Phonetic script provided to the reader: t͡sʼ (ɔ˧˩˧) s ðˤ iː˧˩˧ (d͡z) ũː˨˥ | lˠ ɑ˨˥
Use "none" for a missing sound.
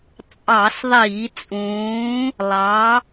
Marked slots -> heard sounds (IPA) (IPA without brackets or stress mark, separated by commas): ɑ˧˩˧, t͡sʼ